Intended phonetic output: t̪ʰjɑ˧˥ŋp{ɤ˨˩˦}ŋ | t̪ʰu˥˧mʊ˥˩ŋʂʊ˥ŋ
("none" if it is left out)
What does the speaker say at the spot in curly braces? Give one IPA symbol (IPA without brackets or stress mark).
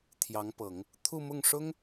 ɤ˨˩˦